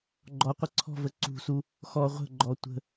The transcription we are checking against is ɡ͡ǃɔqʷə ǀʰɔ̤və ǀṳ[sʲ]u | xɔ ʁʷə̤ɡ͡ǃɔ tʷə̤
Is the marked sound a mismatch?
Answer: yes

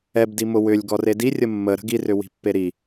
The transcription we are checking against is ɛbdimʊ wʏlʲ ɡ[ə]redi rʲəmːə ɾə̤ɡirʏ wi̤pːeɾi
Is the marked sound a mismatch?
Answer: yes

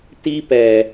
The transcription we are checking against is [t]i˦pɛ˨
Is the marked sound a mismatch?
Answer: no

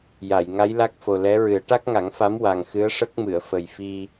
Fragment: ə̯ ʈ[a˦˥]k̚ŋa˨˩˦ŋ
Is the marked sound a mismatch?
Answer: no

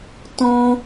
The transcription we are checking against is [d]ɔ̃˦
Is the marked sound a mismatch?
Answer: yes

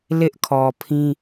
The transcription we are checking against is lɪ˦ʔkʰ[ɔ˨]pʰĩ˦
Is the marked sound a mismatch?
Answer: no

